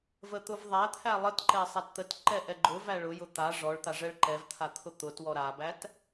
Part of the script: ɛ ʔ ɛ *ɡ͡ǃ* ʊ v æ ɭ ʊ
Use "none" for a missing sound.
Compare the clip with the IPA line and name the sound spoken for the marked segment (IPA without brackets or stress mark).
ɡ͡ǃ